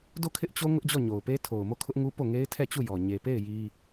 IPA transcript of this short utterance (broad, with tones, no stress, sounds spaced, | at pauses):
d o˦˨ kʰ ɪ˦ ʔ t͡ɕ o˦ ŋ ʊ˦ ʔ d͡ʑ ɔ˦˨ ɲ o˨ ʊ̯ p e˦ tʰ o˨ ʊ̯ m o˦˨ kʰ ʊ˦ ʔ ŋ u˦ p o˦˨ ŋ e˦ ɪ̯ tʰ ɛ˦˨ t͡ɕ u˦˨ j ɔ˨ ɲ e˨ p e˦˨ ɪ̯ j i˦